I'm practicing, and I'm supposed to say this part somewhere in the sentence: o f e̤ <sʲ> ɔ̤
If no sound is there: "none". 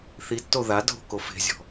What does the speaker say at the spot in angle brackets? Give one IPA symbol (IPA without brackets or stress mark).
zʲ